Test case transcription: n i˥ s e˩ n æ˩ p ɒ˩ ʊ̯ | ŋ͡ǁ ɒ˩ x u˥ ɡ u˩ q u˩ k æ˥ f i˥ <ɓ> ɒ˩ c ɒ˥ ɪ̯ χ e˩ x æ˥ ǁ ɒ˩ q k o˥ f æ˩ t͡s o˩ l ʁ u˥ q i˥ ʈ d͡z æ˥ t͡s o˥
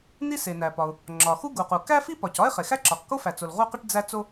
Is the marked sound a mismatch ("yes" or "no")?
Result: yes